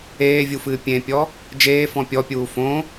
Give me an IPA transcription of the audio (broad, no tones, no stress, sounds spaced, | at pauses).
eː vʲ u f ɨː pʲ ẽ pʲ ɔ | d͡ʒ eː f ɔ̃ pʲ ɔ pʲ uː f õ